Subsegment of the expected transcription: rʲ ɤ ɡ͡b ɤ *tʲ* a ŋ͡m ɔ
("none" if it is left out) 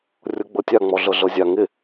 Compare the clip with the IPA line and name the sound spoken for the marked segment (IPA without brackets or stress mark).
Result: tʲ